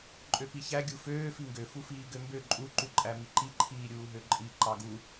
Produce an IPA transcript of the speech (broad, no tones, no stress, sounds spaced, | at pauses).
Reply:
ǃʼ ø p i ç æ ɡʲ u f øː f i ŋ ɡ ø f u f iː ɡ ø m b ø ǃʼ u ǃ u ǃʼ æ m i ǃ i ǃʰ iː ɾʲ uː ɦ ø ǃʼ i ǃ ɑ ɡ u